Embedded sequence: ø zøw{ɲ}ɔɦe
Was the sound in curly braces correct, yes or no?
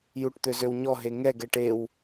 yes